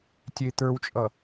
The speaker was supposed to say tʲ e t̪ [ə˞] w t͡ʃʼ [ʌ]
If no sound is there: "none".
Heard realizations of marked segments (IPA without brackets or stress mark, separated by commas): ə˞, ʌ